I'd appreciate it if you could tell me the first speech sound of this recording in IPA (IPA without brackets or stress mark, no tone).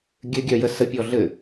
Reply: ɡʲ